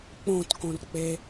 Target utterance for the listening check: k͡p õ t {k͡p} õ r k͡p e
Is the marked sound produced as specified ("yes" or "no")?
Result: no